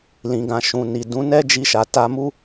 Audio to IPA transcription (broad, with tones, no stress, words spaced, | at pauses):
lĩ˨ɡã˨ ʃũ˨ ni˨dũ˨˦nɛ˦ d͡ʒi˧ʃa˨ta˧mu˦